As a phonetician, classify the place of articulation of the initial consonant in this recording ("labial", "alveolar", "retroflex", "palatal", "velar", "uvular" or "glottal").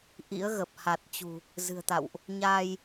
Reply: glottal